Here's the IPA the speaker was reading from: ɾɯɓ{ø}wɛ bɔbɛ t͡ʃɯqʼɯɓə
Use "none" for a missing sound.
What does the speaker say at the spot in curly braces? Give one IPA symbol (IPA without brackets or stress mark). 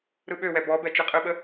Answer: ø